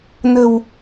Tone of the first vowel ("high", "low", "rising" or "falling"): low